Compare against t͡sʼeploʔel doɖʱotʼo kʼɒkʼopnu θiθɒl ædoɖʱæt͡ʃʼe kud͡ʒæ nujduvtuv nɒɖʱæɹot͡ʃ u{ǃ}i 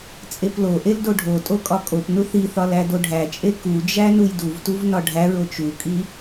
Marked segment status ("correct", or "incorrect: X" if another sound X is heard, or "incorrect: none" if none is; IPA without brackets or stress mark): incorrect: kʼ